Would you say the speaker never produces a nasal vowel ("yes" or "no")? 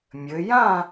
no